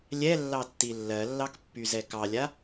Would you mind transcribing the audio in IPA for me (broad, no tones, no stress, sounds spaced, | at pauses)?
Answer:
lʲ ɛ lː ɑ tː i lː ɜ lː ɑ k pː y z ɛ k ɑ lʲ a